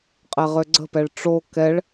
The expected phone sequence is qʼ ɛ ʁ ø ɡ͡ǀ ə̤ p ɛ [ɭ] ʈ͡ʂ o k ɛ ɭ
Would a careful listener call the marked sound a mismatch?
no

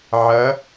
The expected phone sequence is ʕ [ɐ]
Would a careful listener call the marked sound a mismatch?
no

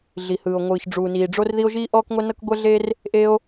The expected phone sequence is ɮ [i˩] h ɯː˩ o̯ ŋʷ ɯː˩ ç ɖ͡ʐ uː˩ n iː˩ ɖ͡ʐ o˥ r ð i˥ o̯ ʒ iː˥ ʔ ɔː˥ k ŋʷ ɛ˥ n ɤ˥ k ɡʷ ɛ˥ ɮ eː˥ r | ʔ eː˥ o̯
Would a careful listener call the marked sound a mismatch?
no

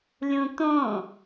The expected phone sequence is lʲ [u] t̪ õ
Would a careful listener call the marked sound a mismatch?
yes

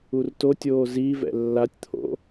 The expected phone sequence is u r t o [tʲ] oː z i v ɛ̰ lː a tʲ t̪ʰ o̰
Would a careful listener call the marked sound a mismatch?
no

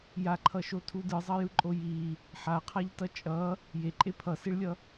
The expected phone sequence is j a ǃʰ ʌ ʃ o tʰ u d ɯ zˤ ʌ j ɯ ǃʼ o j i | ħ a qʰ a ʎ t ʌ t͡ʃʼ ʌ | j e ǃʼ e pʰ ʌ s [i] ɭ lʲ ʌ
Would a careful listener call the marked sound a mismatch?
no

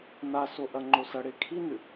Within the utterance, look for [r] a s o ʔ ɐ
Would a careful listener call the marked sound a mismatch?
yes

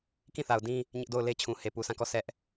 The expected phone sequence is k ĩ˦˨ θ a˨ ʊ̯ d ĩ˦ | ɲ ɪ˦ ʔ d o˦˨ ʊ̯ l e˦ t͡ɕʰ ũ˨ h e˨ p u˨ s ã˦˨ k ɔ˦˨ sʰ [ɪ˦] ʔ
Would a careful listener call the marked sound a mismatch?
yes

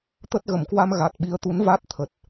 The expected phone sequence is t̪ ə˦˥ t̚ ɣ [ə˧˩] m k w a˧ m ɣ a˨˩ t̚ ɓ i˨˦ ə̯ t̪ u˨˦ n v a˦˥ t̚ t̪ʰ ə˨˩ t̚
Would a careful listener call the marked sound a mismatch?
no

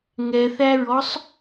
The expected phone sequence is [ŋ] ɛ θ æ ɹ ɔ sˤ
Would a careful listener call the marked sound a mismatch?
no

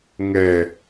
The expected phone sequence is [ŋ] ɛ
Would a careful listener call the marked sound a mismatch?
no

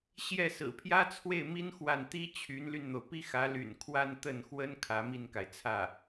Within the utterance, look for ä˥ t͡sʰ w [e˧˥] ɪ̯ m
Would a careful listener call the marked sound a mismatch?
yes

